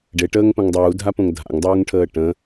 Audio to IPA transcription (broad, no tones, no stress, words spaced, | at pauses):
ɖeʈəːŋpə̃ŋ dˤuːdʱapõŋ dʱa̰ŋdˤuːŋʈʰəː ʈə̃